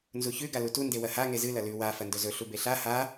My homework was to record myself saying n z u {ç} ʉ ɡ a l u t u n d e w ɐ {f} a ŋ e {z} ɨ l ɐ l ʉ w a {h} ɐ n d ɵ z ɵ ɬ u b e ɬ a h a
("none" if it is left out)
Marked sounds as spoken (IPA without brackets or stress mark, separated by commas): ç, h, z, f